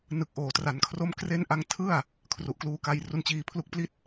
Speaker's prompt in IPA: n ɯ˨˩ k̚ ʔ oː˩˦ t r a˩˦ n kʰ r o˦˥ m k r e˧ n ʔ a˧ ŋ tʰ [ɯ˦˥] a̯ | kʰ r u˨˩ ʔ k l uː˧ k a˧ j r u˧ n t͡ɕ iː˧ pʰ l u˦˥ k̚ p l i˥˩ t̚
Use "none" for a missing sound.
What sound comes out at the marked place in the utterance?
ɯ˥˩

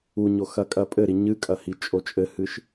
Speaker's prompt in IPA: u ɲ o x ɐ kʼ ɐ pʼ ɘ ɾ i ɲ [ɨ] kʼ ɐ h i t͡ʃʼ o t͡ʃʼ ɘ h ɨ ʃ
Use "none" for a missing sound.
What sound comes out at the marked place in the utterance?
ɨ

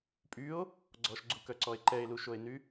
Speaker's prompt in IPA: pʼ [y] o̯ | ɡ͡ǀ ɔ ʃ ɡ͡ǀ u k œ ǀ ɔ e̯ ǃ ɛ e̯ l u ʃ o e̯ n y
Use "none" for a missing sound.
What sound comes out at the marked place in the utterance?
y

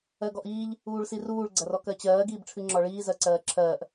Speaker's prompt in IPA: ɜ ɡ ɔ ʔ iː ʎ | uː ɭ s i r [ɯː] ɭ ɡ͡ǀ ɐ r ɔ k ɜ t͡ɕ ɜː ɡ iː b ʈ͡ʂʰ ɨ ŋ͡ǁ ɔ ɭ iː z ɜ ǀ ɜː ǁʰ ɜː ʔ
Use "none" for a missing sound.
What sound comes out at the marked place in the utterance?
uː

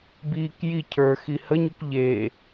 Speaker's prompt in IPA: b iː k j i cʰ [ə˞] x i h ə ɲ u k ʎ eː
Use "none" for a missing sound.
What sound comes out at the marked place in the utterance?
ə˞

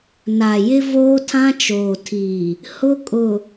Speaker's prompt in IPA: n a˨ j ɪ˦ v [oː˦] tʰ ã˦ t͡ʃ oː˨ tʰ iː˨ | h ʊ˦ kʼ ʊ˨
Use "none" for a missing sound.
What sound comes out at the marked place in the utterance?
oː˦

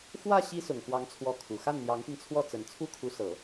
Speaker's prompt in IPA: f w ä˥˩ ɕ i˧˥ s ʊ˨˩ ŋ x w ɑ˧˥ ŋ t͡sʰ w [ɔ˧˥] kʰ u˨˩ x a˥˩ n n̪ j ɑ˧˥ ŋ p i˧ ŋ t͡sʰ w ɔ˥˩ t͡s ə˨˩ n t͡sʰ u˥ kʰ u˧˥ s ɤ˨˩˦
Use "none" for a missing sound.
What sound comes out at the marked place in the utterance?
ɔ˧˥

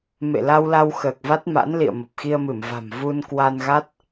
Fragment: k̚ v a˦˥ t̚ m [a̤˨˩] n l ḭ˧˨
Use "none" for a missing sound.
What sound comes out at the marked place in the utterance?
a̰˧˥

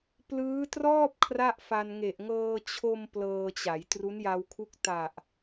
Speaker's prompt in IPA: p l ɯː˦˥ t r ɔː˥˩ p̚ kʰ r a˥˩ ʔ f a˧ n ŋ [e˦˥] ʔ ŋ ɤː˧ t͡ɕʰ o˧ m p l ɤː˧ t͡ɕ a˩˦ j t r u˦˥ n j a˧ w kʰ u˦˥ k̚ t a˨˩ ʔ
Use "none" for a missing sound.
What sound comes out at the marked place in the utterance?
e˨˩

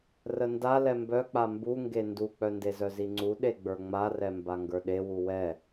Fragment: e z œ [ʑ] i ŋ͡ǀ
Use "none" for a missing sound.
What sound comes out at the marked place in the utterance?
z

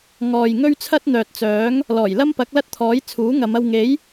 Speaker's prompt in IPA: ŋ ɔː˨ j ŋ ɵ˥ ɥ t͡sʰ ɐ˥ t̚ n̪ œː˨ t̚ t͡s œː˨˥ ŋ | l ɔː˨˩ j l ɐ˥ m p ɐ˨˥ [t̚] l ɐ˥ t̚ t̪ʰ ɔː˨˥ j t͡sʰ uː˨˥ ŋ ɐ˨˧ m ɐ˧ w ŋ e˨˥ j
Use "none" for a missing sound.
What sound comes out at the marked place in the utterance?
k̚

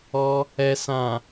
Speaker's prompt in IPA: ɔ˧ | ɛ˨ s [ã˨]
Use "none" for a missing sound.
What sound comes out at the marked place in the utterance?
ã˨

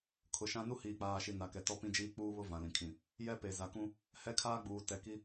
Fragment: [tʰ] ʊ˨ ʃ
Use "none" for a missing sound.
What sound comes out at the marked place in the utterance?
kʰ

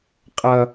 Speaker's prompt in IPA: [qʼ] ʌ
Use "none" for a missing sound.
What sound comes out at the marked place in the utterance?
qʼ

